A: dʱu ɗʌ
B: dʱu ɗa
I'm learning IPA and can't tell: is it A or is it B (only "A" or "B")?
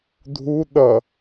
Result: A